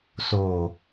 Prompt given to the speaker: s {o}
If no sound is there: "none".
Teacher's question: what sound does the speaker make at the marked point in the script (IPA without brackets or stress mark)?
o